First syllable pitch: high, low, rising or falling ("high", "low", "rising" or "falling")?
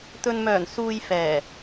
low